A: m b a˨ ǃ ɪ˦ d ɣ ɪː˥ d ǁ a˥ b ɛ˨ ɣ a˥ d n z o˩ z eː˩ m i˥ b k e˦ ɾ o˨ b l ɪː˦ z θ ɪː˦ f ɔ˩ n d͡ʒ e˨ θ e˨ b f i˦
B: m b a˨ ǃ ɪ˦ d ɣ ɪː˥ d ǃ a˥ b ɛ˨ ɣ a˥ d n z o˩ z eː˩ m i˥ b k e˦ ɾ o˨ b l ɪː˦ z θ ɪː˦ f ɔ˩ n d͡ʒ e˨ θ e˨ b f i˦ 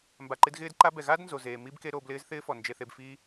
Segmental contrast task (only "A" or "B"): B